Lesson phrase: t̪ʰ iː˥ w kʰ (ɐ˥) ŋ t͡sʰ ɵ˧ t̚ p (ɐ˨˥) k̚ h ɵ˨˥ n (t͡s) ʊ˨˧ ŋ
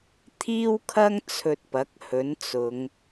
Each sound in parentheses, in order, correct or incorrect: correct, correct, correct

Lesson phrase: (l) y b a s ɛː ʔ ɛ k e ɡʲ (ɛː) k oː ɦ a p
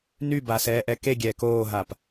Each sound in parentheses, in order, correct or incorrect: incorrect: n, correct

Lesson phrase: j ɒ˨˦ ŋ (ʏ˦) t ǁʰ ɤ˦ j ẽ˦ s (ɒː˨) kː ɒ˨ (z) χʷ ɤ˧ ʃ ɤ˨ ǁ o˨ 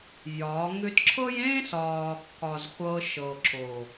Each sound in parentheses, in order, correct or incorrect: correct, correct, correct

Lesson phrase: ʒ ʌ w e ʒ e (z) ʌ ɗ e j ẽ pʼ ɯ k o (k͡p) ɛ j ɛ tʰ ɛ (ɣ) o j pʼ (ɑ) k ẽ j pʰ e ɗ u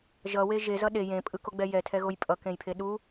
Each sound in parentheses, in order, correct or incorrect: correct, incorrect: ɡ͡b, correct, incorrect: ʌ

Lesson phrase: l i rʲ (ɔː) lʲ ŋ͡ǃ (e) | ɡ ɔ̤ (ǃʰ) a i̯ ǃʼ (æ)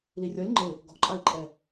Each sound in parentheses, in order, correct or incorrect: incorrect: ɔ, correct, incorrect: ǃʼ, incorrect: ɛ

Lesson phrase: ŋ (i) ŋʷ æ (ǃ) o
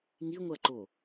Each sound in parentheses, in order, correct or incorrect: correct, correct

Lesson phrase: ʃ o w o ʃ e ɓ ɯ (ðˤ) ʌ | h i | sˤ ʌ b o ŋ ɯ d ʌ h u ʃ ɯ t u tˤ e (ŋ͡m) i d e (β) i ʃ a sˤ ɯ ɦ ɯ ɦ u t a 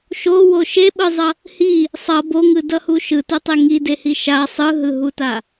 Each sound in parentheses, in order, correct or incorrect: incorrect: zˤ, incorrect: ŋ, incorrect: h

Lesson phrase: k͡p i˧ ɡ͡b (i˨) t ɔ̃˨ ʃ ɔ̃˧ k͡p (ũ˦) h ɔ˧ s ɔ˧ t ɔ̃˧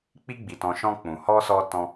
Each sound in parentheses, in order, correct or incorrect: correct, incorrect: ũ˨

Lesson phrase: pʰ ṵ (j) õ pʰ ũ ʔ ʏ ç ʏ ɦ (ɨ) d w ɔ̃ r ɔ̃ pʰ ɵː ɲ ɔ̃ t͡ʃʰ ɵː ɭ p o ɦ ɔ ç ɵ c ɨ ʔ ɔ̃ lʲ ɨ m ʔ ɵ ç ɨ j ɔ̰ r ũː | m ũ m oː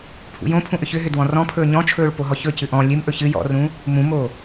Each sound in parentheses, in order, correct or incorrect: correct, incorrect: ʏ

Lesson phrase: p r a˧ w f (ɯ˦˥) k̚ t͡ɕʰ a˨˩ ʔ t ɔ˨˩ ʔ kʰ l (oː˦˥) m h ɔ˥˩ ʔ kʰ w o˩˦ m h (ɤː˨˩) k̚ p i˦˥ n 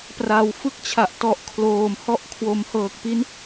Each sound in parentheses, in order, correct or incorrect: correct, incorrect: oː˨˩, correct

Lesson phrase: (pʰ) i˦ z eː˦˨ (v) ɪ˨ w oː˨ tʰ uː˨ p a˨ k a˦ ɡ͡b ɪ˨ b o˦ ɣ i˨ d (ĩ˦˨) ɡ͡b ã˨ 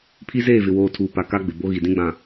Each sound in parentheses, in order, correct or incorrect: correct, correct, incorrect: ĩ˦

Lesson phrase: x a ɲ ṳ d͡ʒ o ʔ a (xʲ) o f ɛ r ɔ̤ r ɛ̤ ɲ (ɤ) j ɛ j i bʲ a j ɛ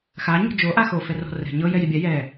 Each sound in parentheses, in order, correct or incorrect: incorrect: x, correct

